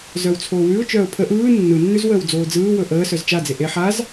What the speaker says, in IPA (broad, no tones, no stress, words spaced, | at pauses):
zœwt͡sʰoːwʉʊ̯ t͡ʃœːʊ̯pʰə ʔɯː nːɯnːʉzwəːw d͡zoːd͡zɯː wɵʔəː sœzt͡ʃad͡ze ʔe ħaz